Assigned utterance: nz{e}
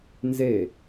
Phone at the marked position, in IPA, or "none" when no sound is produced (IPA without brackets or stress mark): e